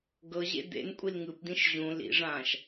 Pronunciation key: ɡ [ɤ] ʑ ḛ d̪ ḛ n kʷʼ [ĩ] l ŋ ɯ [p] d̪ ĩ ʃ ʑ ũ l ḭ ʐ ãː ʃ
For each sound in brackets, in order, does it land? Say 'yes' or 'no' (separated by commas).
yes, no, yes